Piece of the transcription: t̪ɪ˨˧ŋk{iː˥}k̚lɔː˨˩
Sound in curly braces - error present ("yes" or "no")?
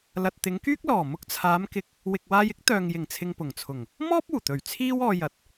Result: yes